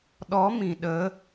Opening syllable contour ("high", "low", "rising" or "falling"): rising